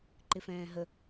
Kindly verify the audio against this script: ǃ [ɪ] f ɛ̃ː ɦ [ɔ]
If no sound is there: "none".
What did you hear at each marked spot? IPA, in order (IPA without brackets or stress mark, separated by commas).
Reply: ɪ, ə